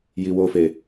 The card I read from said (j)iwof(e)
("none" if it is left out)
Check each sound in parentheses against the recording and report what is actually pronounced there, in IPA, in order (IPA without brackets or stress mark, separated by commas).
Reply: j, e